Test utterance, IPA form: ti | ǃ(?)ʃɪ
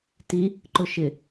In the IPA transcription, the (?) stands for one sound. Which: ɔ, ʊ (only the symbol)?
ʊ